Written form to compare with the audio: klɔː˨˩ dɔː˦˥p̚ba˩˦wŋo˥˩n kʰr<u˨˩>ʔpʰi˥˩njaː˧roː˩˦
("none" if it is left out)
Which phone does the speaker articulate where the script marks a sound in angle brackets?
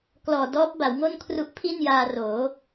u˦˥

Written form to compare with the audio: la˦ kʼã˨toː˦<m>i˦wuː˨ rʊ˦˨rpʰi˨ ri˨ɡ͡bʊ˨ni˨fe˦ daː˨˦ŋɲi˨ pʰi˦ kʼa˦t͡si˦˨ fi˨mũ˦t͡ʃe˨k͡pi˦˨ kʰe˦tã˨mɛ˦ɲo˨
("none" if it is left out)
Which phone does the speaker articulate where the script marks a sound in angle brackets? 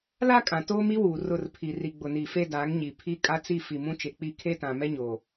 m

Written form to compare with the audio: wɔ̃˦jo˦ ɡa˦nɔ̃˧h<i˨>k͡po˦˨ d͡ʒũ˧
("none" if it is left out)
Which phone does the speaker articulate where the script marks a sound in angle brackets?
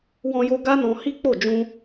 i˦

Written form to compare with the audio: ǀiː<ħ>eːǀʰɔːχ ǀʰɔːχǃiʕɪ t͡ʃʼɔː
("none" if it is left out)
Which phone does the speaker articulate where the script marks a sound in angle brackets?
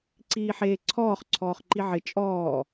ħ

